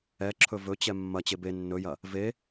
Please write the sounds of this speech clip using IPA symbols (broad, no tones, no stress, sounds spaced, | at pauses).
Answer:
ɛ ǁʰ ɵ v ɵ t͡ɕ ɛ mː ɐ t͡ɕ e b e nː ɵ j ɐ | v e